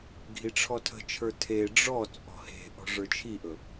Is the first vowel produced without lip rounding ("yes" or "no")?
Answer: yes